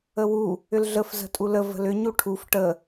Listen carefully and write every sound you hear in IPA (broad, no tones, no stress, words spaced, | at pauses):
əwu | ʏlɮəf zə̤tʼulə və̤lʏ ɲuʈʰuf ʈə